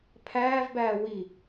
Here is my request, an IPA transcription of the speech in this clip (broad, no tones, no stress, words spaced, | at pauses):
pʰæːvbæː wi